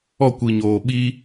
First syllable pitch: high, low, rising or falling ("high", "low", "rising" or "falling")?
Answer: falling